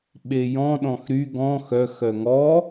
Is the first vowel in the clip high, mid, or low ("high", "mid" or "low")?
mid